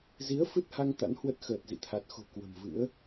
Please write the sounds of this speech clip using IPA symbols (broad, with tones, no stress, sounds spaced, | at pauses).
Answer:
z i˨˦ ə̯ f ɨ˦˥ t̚ h a˧ ŋ t̪ a̰˧˥ n h w ə˦˥ t̚ x əː˨˩ t̚ z ḭ˧˨ t̪ʰ a˨˩ t̚ x o̤˨˩ k w ə̤˨˩ m v ɨ̰˧˥ ə̯